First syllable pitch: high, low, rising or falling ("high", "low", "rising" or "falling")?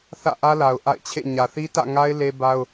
falling